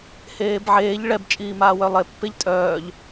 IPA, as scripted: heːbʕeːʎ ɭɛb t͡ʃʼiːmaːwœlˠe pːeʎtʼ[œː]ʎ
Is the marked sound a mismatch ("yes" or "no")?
no